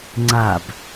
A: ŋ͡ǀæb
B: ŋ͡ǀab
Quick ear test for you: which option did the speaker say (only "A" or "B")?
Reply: B